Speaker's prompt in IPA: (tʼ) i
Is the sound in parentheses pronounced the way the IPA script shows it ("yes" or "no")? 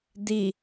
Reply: no